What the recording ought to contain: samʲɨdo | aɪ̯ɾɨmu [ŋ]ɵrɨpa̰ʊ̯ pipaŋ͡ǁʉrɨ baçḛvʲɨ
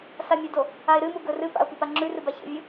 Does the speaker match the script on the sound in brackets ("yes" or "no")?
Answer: no